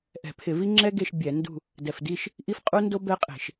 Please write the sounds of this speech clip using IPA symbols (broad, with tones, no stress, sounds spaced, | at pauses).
ʔ ɛ̤˧˩˧ pʰ ɪ˧˩˧ v i˦ ŋ͡ǁ ɛ˦ ɡ e˦˨ ʃ bʲ ɛ˧˩˧ n d ṳ˦˨ | d ɛ˨˩ f d i˦˨ ʃ | ʔ i˦ f qʼ u˦ n d o˦ b ɛ˦ qʼ e̤˧˩˧ ʃ